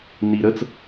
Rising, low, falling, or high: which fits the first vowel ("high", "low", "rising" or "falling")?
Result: high